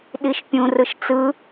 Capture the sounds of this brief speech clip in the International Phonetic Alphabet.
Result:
ɗiʃpʲũ rɯʃt͡sɯ

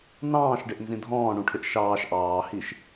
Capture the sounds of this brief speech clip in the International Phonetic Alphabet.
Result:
nɑ̃ːʃɖɪʔnzĩ dʱɔ̃ːɳũʈʰɪʔ ʃɑːʃ ʔɑːhiʃ

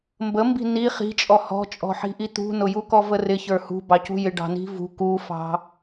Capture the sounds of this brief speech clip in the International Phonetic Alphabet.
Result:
mbəmbi̤ ni χi̤t͡ʃʼɔ hɔ̤t͡ʃʼɔ̤ħi̤ʔi t̪ṳnʊjukɔ vərɪçə˞ hṳ bɑcṳjɪɖɑ̤ ni̤vṳ kufɑ̤

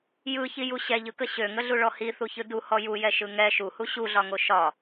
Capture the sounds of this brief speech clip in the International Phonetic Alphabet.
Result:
jɯçiju ɕɛʎɯkə ɕøŋəɮuɭɔ hiθuçɯ duhɔ jujɛʃɯ ŋɛ ʃuhu ɕuɮɒŋo ʃɒ

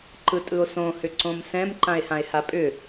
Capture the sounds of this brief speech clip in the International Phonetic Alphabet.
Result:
ǃɯtʼɯo̯sõhʏ ǀõmsɛ̃m ǃãe̯hãe̯hapʼʏ

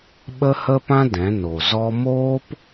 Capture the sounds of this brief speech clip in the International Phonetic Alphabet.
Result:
ɓə˦hə˦pã˦ dɛ̃˨˦no˨ zɔ˧moː˦p

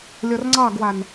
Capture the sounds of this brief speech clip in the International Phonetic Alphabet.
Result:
lʲɔrŋ͡ǀɑɡwan

